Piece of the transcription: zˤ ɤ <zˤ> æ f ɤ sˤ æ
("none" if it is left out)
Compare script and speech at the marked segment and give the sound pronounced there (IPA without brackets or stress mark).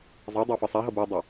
dˤ